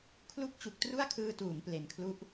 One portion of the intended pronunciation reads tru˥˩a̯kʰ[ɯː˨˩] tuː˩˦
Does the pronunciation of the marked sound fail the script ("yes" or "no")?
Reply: yes